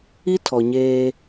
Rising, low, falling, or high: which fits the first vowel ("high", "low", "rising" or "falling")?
high